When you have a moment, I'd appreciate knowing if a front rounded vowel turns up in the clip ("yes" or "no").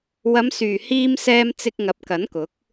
yes